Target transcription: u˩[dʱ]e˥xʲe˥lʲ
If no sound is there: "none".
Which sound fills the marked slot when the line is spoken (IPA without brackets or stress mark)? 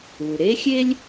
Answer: ɾ